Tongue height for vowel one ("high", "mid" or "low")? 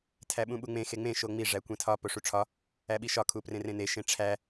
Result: low